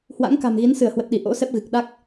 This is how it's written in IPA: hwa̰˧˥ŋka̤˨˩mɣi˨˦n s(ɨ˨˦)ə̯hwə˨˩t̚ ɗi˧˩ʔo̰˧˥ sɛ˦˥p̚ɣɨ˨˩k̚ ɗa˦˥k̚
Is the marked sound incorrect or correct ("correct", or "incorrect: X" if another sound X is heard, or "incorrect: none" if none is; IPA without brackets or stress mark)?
incorrect: ɨ˧˩